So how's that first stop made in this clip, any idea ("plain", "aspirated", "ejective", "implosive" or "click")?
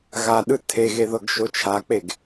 implosive